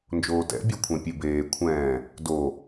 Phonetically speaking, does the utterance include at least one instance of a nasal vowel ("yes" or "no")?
yes